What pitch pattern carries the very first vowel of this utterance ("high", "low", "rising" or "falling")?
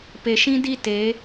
low